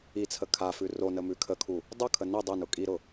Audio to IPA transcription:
i t͡sʰ ə kʰ a f ʉ r o n ə m ʉ kʰ ə kʰ u | dˤ ʊ kʰ ə n i dˤ ə n ʊ kʼ i ɾ ʊ

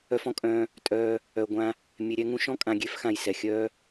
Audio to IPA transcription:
œ˧ f ɔ̃˦ kʼ œ̃ː˧ | tʼ œː˧ | œ˨ ɡʷ ã˧ | mʲ e˨ ɾʲ ɛ˧ ŋ ũ˧ ʃ ɔ̃˦ kʼ ã˨ ɡʲ e˨˦ f x ã˨ j s ɛ˨ xʲ œː˦

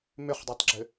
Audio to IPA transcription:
m ʏ χ dˤ a tˤ ɡ͡ǁ ʏ

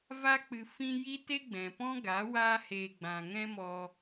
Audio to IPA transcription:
v a˧ k͡p ɨ˨ f ĩ˧ j i˦ t e˦ ɡ͡b ɛ̃˨ p ɔ̃˦ ɡ a˨˦ w aː˧ h eː˨ ɡ͡b ã˨ ŋ ɛ̃˦ m ɔ˧

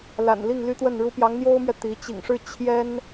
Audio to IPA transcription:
l a̰˨˩ n l i˥˩ ŋ l y˥ t̪ w ə˥˩ n ɻ u˥ p j ɑ˧˥ ŋ n̪ j o˥ ʊ̯ m ɥ ɛ˨ t̪ i˧˥ t͡ɕ ḭ˨˩ ŋ ʂ ɻ̩˥˩ t͡ɕʰ j ɛ˥ n

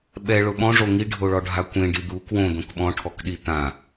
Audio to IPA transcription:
ɓ ɛ ɭ ʊ ɓ ɔ̃ ʐ o ŋ i ɖʱ o ɭ ɔ ɖʱ a kʷ ẽ ɖ i d̪ u k w õ d̪ õ k ɓ ɔ̃ ʈʰ ɔ k ɗ i t̪ ã

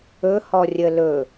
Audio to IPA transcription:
ɵ h ɔ rʲ ə l ɵ

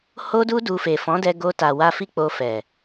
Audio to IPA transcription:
h o˦ d u˦ d u˧ f e˨ f ɔ̃˨˦ d ɛ˧ ɡ o˧ t a˨ w a˧ f i˦ k͡p o˧ f ɛ˨

